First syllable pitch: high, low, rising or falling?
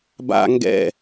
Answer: low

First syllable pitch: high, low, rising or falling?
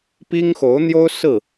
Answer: high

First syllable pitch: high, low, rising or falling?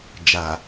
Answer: low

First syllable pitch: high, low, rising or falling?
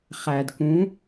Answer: low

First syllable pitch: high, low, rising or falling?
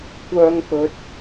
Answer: high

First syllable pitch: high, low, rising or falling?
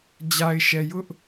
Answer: low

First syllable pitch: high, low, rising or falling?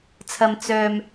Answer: low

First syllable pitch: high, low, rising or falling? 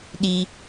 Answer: high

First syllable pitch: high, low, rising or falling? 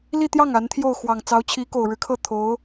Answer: falling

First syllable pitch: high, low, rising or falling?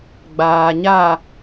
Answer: low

